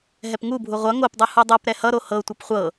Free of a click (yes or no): yes